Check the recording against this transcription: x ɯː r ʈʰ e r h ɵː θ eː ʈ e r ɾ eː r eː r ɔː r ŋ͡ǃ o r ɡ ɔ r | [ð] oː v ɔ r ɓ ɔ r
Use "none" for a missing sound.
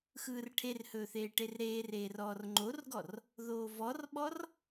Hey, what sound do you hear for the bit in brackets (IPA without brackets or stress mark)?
ð